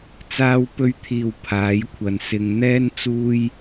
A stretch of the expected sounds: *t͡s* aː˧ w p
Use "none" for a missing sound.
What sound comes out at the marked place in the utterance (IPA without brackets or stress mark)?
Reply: t͡s